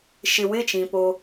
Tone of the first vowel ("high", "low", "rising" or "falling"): low